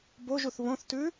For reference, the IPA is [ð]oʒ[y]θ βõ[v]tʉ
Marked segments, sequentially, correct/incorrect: incorrect, incorrect, incorrect

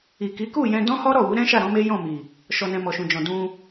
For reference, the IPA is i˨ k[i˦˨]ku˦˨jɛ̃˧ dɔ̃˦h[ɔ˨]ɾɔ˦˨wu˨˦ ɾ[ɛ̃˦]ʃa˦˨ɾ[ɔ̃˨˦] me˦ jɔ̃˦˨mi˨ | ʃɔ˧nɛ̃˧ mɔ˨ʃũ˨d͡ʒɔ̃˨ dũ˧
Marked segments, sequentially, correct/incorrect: incorrect, incorrect, correct, correct

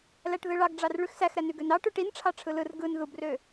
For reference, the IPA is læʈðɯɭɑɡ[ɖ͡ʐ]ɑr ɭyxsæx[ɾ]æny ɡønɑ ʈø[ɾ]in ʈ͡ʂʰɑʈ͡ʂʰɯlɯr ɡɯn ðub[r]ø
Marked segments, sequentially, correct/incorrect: correct, correct, incorrect, correct

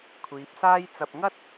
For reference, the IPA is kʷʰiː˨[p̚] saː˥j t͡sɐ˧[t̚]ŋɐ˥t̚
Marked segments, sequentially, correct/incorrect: correct, incorrect

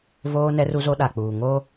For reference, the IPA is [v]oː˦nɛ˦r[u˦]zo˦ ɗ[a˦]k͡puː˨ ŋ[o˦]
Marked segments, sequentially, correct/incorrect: correct, correct, incorrect, correct

